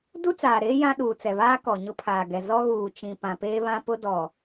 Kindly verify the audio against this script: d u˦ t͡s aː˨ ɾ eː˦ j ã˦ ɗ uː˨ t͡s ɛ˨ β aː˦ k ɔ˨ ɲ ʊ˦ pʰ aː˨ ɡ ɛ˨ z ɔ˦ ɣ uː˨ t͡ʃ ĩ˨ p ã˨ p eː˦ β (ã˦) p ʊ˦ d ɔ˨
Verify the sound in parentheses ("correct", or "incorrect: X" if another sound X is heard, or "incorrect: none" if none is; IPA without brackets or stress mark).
correct